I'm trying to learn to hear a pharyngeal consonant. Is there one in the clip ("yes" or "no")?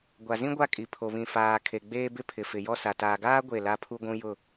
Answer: no